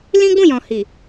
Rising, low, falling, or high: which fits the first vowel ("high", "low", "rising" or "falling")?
high